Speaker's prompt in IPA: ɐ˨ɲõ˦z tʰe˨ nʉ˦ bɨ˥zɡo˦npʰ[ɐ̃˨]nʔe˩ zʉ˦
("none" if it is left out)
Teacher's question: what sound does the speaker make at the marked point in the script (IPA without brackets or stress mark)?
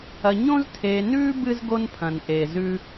ɐ̃˩